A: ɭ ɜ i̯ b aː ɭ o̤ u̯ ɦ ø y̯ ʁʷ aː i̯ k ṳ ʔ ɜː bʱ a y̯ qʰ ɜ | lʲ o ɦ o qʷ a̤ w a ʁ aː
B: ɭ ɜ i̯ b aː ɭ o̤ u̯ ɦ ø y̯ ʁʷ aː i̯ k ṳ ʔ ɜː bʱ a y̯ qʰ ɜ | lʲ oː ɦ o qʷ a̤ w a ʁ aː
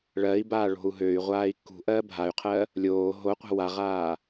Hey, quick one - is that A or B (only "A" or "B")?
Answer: B